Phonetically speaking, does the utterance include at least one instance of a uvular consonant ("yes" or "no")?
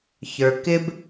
no